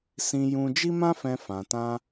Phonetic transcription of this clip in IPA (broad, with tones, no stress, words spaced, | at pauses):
sĩ˧jũ˧ d͡ʒi˦mã˦fɛ̃˧ fã˨tã˧